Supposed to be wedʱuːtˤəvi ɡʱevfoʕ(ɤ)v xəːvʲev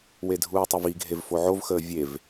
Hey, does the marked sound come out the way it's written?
no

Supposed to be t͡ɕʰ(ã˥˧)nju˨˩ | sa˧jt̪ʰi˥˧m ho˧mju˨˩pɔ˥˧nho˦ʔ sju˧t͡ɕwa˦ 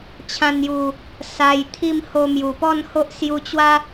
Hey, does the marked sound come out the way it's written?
no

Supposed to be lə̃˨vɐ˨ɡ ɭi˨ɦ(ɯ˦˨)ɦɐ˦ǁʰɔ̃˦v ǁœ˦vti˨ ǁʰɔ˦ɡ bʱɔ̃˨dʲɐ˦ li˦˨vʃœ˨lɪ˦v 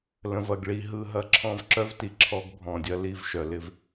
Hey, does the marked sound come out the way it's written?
yes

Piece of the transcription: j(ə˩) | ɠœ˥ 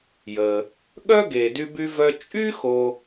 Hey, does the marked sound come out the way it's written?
yes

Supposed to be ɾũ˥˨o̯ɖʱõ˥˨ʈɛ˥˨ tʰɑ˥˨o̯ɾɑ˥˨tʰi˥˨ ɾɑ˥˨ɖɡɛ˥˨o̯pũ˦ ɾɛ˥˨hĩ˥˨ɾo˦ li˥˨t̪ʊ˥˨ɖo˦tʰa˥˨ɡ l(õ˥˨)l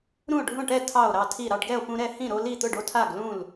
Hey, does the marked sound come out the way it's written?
no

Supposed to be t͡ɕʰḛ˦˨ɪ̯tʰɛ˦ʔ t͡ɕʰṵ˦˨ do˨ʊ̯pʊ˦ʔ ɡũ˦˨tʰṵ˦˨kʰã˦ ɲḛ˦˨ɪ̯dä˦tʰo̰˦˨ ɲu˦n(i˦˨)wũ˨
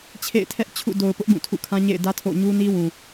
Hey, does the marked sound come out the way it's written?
no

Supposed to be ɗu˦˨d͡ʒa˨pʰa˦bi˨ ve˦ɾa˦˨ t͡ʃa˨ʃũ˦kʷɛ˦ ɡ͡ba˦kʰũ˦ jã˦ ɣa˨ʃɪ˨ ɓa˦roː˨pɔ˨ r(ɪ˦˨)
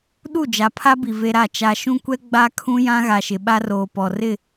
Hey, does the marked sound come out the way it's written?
yes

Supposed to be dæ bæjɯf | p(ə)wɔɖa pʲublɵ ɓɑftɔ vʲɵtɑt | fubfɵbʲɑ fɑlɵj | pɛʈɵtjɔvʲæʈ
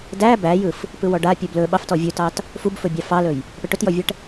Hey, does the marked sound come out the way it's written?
no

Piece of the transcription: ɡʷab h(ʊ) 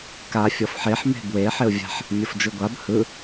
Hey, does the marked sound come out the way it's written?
no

